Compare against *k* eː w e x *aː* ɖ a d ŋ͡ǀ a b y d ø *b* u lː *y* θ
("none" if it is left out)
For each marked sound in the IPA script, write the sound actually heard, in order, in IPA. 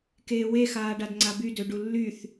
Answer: k, aː, ɖ, y

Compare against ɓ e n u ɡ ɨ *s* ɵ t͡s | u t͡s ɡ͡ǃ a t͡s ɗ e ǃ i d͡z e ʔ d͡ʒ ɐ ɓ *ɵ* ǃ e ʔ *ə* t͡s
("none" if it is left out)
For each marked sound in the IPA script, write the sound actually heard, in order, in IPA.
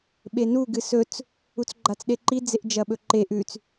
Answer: s, ɵ, ʉ

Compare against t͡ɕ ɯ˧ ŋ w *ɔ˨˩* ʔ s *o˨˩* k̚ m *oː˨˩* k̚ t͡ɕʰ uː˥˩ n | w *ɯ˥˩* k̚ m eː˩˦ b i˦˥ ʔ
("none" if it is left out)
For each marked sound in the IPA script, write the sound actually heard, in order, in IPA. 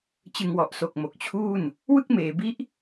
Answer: ɔ˨˩, o˨˩, o˨˩, ɯ˥˩

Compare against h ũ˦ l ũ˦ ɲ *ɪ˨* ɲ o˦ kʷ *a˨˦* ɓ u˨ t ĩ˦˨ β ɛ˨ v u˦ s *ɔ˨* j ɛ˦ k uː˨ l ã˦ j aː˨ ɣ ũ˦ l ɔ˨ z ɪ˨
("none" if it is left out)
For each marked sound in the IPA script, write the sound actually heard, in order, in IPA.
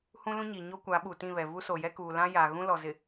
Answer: i˨, a˨˦, o˨

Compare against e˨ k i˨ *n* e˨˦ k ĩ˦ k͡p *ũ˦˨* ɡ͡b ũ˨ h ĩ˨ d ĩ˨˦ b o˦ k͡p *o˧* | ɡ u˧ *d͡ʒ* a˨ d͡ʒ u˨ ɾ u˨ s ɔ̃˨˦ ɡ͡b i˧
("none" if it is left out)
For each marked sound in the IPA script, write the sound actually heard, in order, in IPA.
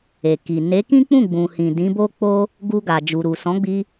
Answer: n, ũ˦˨, o˦, ɡ

